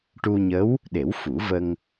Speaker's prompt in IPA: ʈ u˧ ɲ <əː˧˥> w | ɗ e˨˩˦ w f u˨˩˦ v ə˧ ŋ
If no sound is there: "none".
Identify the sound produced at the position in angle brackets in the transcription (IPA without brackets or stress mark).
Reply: ə˧˥